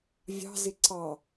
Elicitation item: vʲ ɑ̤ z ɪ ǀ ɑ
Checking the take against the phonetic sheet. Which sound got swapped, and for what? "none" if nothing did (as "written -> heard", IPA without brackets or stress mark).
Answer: none